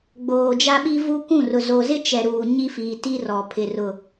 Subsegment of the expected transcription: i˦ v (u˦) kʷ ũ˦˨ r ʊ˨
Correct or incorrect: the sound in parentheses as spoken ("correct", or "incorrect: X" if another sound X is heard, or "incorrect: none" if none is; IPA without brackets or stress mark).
correct